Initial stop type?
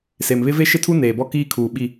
aspirated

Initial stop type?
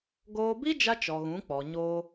plain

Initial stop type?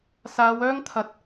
aspirated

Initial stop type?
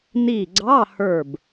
click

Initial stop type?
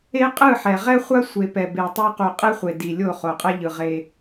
ejective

